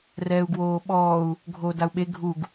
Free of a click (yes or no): yes